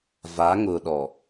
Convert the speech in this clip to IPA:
v a˨˦ ŋ ʊ˨ ɗ ɔ˨

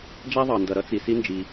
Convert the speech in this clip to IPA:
d͡ʒ æ˥ ðˤ ɑ˩ n d ʌ˩ ɾ ʌ˥ t͡s i˩ s i˥ n d͡ʒ i˩

